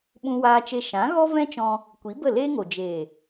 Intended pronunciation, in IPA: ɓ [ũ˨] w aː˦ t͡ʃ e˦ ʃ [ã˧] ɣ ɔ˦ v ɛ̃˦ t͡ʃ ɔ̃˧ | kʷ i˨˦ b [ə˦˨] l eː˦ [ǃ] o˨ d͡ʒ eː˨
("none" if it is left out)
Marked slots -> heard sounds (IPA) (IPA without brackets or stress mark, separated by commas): ũ˦, ã˨˦, ə˦˨, ŋ